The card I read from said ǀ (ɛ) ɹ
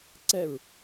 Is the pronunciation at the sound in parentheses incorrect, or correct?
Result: correct